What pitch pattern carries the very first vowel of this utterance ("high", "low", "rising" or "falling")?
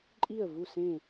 falling